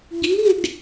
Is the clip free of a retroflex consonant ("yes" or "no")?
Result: no